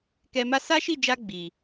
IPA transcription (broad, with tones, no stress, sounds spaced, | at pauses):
k ɛ˧ m a˦ s a˦ ʃ i˦˨ d͡ʒ a˧ ɡ͡b i˨